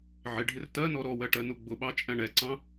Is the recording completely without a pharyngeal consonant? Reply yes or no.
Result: no